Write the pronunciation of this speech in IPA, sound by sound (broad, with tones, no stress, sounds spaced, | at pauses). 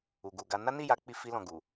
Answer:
u˧ ɡ u˧ ɡ a˦ n a˦ n i˦˨ j a˨˦ k͡p i˧ f i˧ l ɔ̃˨ ɡ u˨